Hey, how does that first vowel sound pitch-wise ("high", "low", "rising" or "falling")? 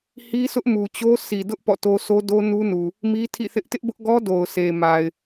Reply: high